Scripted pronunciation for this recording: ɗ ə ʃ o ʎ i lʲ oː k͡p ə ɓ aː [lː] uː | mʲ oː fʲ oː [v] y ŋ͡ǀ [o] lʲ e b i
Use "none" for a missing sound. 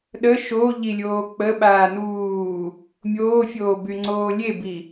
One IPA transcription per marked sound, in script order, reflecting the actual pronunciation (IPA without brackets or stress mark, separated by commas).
n, b, oː